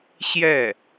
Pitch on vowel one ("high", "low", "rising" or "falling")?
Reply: falling